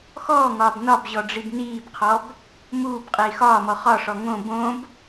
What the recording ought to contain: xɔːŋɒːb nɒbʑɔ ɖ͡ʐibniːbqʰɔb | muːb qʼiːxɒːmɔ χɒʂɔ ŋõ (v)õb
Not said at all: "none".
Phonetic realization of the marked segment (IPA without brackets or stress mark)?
b